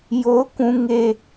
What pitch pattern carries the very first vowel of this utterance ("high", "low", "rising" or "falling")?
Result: high